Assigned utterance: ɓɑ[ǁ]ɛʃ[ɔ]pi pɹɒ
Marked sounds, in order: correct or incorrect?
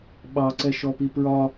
incorrect: ǀ, correct

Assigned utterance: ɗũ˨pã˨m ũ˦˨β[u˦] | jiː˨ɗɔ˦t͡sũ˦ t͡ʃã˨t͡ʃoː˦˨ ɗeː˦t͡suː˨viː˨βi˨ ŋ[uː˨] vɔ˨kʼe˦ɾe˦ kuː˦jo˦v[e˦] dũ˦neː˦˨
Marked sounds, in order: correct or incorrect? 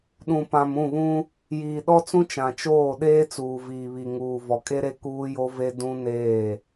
incorrect: ũ˦, correct, correct

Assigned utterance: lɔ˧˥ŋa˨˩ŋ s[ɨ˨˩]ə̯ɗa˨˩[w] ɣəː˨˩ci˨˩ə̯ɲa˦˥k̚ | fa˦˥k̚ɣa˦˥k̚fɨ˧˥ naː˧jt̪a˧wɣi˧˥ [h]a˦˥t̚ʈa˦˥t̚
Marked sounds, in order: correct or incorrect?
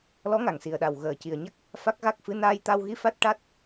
incorrect: i˨˩, correct, incorrect: f

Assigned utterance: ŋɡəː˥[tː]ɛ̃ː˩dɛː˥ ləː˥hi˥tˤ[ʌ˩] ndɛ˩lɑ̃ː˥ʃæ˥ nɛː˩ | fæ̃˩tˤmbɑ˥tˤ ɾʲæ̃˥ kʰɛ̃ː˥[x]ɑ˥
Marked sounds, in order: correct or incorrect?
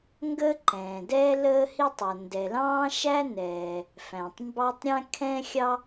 incorrect: ǃ, correct, incorrect: xʲ

